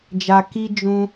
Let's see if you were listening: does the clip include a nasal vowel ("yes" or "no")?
yes